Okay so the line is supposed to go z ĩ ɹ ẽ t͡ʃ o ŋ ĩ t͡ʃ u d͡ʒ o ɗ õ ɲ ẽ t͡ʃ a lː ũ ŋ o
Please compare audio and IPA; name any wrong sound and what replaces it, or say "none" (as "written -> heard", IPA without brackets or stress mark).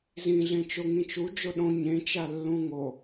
ɹ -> ɮ